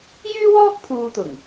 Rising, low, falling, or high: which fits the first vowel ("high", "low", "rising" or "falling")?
high